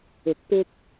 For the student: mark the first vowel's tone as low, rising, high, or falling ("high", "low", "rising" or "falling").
low